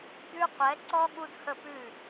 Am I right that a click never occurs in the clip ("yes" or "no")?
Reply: no